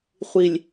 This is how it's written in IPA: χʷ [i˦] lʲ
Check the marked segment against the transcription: incorrect: i˨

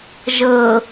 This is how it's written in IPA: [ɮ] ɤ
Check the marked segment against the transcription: incorrect: ʒ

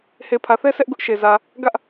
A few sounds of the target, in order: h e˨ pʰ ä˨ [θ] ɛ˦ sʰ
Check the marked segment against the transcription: correct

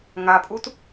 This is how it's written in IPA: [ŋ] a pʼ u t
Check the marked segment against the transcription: correct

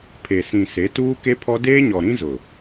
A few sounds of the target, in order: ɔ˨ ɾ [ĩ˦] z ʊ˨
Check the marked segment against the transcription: correct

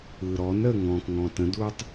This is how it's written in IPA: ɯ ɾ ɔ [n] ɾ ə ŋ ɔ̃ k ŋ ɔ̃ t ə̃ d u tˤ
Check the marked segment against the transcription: correct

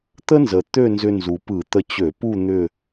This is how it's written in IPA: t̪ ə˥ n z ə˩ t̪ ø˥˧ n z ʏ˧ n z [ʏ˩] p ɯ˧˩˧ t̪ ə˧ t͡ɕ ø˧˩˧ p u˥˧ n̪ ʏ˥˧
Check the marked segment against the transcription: incorrect: u˩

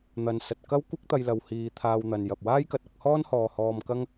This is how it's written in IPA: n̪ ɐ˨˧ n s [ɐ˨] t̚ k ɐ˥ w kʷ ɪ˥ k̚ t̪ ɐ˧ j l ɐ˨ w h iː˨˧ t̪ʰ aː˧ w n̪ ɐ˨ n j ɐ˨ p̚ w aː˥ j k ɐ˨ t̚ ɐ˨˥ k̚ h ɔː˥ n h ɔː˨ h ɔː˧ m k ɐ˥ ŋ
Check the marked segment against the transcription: correct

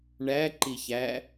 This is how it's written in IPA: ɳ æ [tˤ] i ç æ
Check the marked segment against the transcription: incorrect: ǃ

